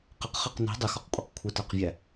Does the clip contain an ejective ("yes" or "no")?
yes